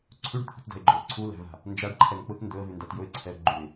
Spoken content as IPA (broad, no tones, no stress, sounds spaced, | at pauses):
ǀʰ ʉ ɖ t̪ʰ ṳ t d æ̤ ɪ̯ ɡ͡ǃ ɵ ʊ̯ ǀʰ u l æ̤ v a̤ | n d͡ʒ a ɖ ǃʰ ɛ n k͡p ʊ t n d ɵ ə̯ v ʉ n d a t j ɵ ɪ̯ ǀʰ ɛ ə̯ ɡ͡ǃ u ɪ̯